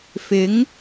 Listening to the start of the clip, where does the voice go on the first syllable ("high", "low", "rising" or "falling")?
rising